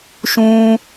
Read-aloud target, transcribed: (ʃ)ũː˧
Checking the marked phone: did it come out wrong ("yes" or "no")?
no